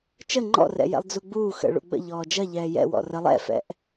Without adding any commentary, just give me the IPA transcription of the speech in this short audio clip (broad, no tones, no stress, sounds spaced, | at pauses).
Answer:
t͡ʃ ə ŋ͡ǃ ɔ̰ r ɛ̰ j ɛ̰ lˠ d͡z u ɡ͡b uː x ə̰ ɭ ṵ ɡ͡b ə̰ ʎ ɔː d͡ʒ ɐ ʎ ɛː j ɛ̰ w ɔ̰ r ə lˠ ɛ̰ f ɛ̰ ʔ